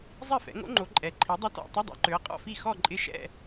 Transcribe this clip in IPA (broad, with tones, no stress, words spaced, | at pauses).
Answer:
zˤi˥˩fɛ̰˨˦ŋo̰˦˥ŋ͡ǃo˨˦ ǃʼɛ˨ǃʰi˨˦ dˤɐ˦˥tɔ̰˧˥˧ tˤɐ˧˥˧dˤɛ̰˨˦ǃø˨˦ɐ̯ qʼɔ̰˥˧fi˥˩ xɔ˥˧ǃʼɪ˦˥ʃɛ̰˥˧